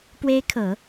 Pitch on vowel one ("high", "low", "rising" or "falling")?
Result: rising